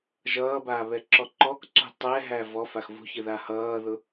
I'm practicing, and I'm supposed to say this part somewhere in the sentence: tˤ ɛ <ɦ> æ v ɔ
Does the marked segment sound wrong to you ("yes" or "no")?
no